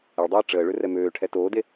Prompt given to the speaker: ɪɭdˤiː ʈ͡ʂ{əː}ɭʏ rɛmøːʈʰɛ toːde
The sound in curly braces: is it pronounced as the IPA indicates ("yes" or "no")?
yes